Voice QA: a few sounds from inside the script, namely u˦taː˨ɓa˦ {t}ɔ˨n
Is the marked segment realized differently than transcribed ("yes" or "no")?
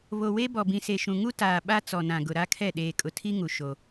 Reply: yes